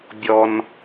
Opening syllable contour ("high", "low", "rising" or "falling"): low